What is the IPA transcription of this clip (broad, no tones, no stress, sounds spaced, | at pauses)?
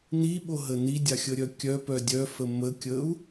n i ɓ o ɦ ə n i dʲ a xʲ ə ɾʲ œ kʲ œ p œ dʲ œ f ə m ə kʲ ə u̯